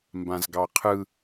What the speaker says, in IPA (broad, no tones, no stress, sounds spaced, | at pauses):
m b ã z ɡ ɑ qʰ ɯ